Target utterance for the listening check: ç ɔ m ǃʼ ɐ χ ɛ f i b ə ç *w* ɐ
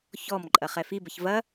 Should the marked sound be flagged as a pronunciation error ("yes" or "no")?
yes